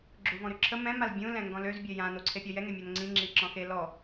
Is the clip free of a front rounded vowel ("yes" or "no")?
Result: no